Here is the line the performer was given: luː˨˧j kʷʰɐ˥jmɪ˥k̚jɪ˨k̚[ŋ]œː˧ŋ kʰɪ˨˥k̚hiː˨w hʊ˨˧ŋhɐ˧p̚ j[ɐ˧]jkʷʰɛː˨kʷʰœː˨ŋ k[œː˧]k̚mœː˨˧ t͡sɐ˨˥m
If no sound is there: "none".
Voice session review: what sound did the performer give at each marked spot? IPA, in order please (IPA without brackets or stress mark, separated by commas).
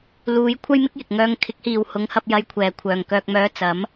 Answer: ŋ, ɐ˧, œː˨